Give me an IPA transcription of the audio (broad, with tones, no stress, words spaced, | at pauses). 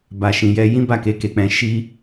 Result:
ba˧ʃĩ˧ jɛ˧ jĩ˦ba˦˨ke˧ ke˧k͡pɛ̃˧ ʃi˦